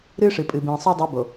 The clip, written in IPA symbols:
ɾɨː˦ʂɨ˨pʼɨ˨ bĩː˨sˤo˦ dˤu˨˦ bo˨

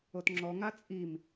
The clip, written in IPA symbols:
otŋ͡ǁɔŋa t͡sʼim

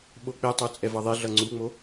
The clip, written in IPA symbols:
ɓok͡petˤo t͡sʼɛvʌðˤeɮʌ ŋ͡ǀuŋ͡mo

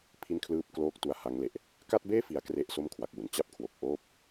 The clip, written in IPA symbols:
pʰi˥˩nkʰlɯː˥˩p̚ kloː˥˩k̚tu˧a̯ ha˦˥ŋle˨˩ʔ | ka˥˩t̚beː˥˩fi˩˦a̯ kre˦˥ʔ so˥˩mkʰwa˨˩k̚wu˨˩n t͡ɕa˥˩p̚kʰwo˨˩k̚ʔoː˥˩p̚

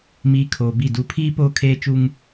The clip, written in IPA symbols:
miː˨ kʰoː˨bi˦˨ du˨pʰiː˦ poː˦kʰeː˦t͡ʃu˦ŋ

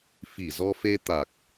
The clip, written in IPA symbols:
fi˧˩zɔ˧fe˧t̪a˨˩k̚

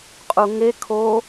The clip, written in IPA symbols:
qʼuŋe kʰo

